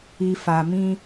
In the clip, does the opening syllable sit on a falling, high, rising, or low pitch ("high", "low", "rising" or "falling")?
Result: low